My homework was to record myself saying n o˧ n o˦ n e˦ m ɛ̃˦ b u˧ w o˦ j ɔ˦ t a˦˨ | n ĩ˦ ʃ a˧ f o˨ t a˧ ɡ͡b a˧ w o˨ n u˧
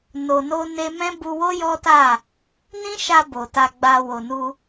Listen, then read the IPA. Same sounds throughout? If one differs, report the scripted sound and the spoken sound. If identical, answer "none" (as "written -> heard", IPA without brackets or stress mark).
f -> b